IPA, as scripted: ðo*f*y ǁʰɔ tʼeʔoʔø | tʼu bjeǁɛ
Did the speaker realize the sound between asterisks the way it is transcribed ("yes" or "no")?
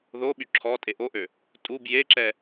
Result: no